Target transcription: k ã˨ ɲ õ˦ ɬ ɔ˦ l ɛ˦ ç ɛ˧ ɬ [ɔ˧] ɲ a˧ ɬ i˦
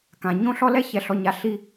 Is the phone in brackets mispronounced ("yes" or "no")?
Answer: no